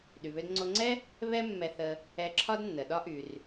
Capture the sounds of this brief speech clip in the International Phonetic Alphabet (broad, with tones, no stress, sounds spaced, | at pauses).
ɗ y˩ β ø˧ d ŋ͡ǀ o˧ ŋ͡ǀ ɛ˥ | β ɛ˥ mː ɛ˧ θ ə˧ | ɛ˧ ǁʰ ɒ˥ d nː ə˩ ɗ ɒ˥ ʔ y˩ r